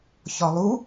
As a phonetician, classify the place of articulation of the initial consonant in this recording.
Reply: palatal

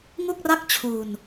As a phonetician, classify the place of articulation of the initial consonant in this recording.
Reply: velar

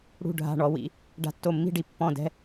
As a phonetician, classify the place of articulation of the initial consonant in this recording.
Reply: retroflex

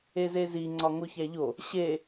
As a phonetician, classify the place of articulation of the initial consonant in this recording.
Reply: alveolar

